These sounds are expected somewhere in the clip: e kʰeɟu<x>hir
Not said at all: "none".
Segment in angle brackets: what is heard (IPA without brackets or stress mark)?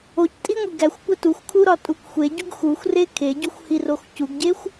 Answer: xʷ